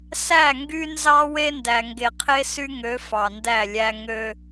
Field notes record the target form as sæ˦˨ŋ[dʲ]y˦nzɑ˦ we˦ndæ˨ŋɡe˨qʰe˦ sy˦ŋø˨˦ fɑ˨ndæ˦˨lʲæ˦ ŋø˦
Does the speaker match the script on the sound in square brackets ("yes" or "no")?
no